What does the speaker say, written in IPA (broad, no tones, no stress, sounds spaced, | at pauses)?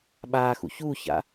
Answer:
ɓ aː x ṵ ç uː ç a̰